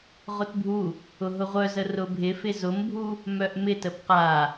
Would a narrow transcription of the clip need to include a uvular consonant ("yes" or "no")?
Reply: yes